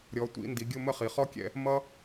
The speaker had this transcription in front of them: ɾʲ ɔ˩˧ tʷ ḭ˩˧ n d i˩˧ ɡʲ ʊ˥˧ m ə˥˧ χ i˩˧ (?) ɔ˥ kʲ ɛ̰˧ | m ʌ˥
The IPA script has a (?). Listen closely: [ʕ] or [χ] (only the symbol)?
χ